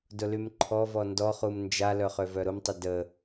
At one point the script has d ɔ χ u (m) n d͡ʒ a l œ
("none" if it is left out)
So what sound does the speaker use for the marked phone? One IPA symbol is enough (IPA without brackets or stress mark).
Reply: m